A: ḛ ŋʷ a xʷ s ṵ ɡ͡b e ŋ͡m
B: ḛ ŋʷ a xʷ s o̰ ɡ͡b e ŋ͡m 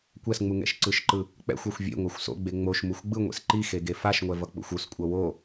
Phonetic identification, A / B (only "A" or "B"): B